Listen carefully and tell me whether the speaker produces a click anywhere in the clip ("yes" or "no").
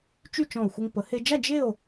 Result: no